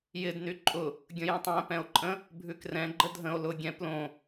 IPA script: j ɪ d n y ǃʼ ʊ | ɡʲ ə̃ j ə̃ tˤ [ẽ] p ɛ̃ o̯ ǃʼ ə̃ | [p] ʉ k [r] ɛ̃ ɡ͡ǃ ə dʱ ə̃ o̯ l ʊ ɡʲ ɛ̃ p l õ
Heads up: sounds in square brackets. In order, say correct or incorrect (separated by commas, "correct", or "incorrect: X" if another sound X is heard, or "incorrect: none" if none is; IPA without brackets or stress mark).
incorrect: ɛ̃, incorrect: bʱ, correct